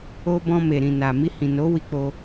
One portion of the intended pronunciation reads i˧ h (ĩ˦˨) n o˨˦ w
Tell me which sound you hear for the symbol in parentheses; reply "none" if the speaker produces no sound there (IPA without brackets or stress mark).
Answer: ĩ˨